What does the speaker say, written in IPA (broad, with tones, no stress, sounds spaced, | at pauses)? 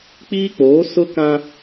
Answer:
k͡p i˦ k͡p oː˨˦ s ʊ˦ k ã˦